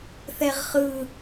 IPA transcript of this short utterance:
θɛʁχɯ

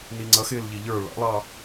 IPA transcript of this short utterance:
niŋ͡ǀʌxɪːl ʎiʎə˞ ɭɑ̰lˠɑː

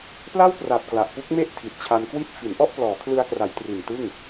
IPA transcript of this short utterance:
pla˥˩wpra˨˩p̚ kla˨˩ʔpu˦˥k̚me˥˩ʔ tʰi˨˩t̚t͡ɕʰa˧nkwi˥˩t̚ fi˩˦nʔɔ˥˩ʔ plɔː˩˦kʰlɯ˧a̯kra˩˦j tri˨˩ntɯ˥˩ŋ

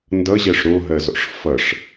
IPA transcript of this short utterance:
ndʌʑɜʂ ɾoɦɜzɔ̰ʂ fʌʂ

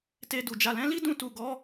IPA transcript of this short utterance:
te˧du˨ d͡ʒa˨lɛ̃˨˦li˦dũ˧ tu˨ɡɔ˨˦

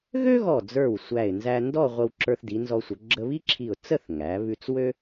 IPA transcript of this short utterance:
ɣø˥ɣɔ˧˩d͡zə˞˧˩w sʷæ˧˩ɪ̯ nzæ˧ndɔ˥˧ ʁʷə˧wǁə˞˧θdi˩˧ nzɔ˧sʷə˩˧ ɡ͡ǁə˧βi˥ǁʰi˧˩ʊ̯ t͡sə˥˧θŋæ˩˧βʉ˧t͡s wø˥

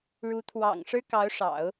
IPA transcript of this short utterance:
ɻu˧˥t̪ʰwɑ̰˨˩ŋ ʂɻ̩˥kɑ˧˥ʊ̯ʂɑ̰˨˩˦ʊ̯

